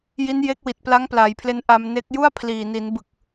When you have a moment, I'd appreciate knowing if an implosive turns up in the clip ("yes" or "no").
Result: no